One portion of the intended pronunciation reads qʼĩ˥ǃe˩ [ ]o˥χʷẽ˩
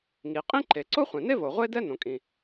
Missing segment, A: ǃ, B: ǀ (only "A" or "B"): B